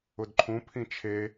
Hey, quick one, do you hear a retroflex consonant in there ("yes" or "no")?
no